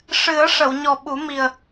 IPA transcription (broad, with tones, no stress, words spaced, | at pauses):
ʂɨ˨˩˦ə̯ ʂə˨˩˨wɲɔ˨˩ɓu˨˩˦mi˨˩ə̯